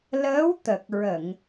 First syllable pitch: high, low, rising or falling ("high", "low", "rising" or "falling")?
rising